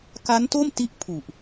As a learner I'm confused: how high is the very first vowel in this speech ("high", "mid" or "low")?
low